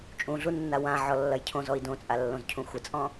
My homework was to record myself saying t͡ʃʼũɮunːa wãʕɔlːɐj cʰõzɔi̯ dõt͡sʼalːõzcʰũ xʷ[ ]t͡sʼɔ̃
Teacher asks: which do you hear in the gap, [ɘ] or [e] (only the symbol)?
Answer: ɘ